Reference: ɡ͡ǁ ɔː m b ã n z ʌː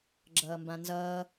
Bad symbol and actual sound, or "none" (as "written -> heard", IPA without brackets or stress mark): ɔː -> ʌː